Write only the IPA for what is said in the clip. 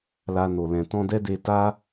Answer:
l a˧ n o˨ l ɛ̃˨ t ɔ̃˧ d ɛ˦ d e˧ t a˦

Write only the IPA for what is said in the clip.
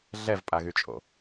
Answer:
ɮ ɛ v pʼ a ɣ y t͡ʃʼ o̰

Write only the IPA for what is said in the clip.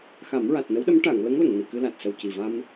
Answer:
x a˨˩˦ m ɹ a˨˩ t̚ n ə˧˥ w ɗ ə˧˥ m ʈ a˨˩˨ ŋ l ə˧˥ ŋ l ə˨˩˨ ŋ n i˨˩˨ k ɨ˧ l a˨˩ t̚ s ə˨˩ w c i˨˩ v a˧ m

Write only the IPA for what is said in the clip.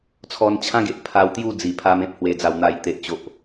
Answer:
t͡sʰ ɔ˧ n t͡ɕʰ ã˦ ɡ e˨ ʔ pʰ a˧ w t̪ j u˥˧ d͡z i˨˩ pʰ a˧ m ẽ˦ p̚ h w e˨˩ d͡z a˨˩ w n̪ a˨˩ j t̪ e˨ ʔ t͡ɕ o˨ ʔ

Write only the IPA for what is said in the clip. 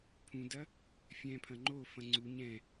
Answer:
pʰ ũ d ɐ | fʲ ɛ̃ pʰ ɐ̃ ŋ͡ǃ o f ɐ̃ ŋ͡ǀ u ɲ ɛ̃

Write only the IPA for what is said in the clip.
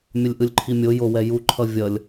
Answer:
mʲ ʌ lʲ ʔ ɯ lʲ ǃʰ i mʲ o j o w ɛ j u ǃʰ ʌ vʲ ʌ lʲ

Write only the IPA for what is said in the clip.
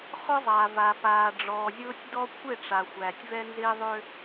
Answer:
χ ʊ˦ zˤ aː˨ v a˨ p aː˨ ɖ͡ʐ ɔː˨ zʲ ʊː˦ tʲ d ɔ˦ kʷʰ ɪ˦˨ ʈ͡ʂ a˨ xʷ æː˨ tʲ v ɛ˦ n z ɪː˦ ðˤ ø˦

